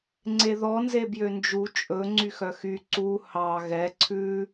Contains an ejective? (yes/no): yes